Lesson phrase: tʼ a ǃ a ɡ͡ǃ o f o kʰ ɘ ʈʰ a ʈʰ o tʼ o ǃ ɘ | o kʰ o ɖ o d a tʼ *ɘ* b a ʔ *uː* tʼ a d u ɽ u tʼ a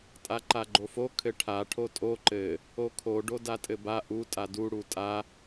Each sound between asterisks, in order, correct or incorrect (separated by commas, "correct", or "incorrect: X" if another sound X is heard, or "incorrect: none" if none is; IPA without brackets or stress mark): correct, incorrect: u